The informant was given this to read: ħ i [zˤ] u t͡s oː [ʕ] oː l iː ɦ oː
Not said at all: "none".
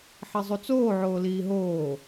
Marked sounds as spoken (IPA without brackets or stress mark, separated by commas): zˤ, ʕ